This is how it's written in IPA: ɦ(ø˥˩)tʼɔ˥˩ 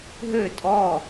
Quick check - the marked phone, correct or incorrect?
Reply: correct